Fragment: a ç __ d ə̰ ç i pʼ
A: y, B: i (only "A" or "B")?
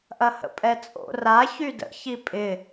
A